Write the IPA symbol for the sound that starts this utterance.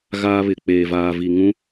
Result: ɣ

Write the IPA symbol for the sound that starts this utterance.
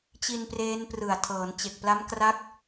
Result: t͡ɕ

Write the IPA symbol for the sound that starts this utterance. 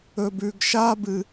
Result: ɵ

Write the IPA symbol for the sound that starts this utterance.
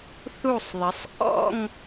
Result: θ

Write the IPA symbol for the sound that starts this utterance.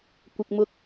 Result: kʷ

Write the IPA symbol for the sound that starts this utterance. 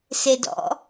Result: s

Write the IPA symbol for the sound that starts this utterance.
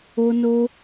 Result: o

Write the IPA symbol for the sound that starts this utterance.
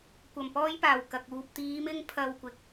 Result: kʷ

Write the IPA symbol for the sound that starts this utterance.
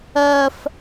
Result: ɜ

